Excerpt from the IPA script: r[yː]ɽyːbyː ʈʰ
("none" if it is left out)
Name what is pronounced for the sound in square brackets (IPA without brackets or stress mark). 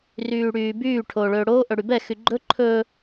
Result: yː